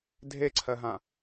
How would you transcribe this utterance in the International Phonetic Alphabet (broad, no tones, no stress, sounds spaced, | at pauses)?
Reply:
dʱ e ǀʰ ɜ ɦ ã